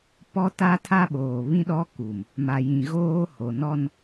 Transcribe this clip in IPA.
pɔ˦ta˦tʰa˦ɓoː˨ βĩ˦ɗɔ˦ku˨m | ma˨jĩ˨ɣoː˦ho˨ nɔ˦n

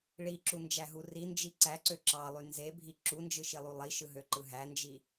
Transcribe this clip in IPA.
ɭiǁund͡ʒæɦu rind͡ʒi ǀæǀø ǁɑlˠy nzebʱi ǁund͡ʒɯʃilˠu lˠiʃɯɦøǃɯ ɦænd͡ʒi

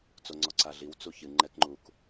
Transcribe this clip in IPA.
t͡soŋ͡ǀɔǀaɮiw t͡suçɨ ŋ͡ǃɛkŋ͡ǃuk

